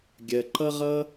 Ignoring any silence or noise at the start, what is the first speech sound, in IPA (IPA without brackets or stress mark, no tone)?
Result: ɡʲ